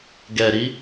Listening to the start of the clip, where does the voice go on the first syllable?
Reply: low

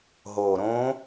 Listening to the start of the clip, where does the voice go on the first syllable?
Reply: low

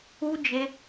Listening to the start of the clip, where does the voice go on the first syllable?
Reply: high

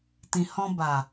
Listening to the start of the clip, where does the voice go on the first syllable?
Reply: low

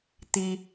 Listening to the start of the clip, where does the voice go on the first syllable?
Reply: high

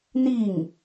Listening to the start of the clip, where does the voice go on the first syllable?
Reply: falling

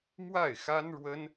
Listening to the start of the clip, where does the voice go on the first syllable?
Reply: falling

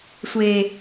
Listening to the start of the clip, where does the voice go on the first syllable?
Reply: low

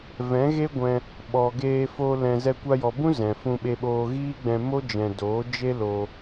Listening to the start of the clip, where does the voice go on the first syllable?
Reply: rising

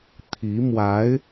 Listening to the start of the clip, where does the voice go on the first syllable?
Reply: rising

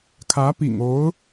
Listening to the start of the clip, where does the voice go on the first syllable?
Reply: rising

